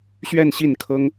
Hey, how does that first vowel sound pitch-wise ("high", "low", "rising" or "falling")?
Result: falling